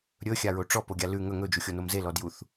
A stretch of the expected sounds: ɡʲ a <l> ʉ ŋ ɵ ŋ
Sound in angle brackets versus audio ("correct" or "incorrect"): correct